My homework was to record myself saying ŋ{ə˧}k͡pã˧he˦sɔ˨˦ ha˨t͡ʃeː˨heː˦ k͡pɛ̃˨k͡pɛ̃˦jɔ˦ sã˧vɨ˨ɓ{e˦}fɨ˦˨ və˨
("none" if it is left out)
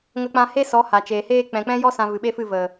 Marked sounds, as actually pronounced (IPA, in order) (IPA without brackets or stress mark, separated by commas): ə˧, e˦